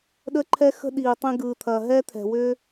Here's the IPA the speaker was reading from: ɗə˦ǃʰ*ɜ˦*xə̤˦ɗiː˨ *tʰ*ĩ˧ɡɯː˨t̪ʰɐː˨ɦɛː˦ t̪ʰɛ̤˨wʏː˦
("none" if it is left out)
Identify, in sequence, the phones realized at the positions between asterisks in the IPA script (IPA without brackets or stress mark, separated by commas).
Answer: ɛ˦, tˤ